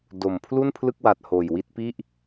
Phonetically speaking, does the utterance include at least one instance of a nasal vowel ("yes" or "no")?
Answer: no